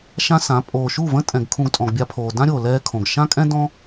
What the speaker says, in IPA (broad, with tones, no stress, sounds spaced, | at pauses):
ʃ ã˦ s ã˨˦ pʼ oː˨ ʃ u˦˨ v ə̃˦ tʼ ɛ̃˨ ɡ kʰ ũ˧ ɡ tʼ ɔ̃˨ ɡ bʲ a˧ pʰ oː˨ d ã˦ ɾʲ oː˨ l ɛː˦ kʰ õ˨ ɡ ʃ ã˦ kʼ ɛ̃˦ d ɔ̃˦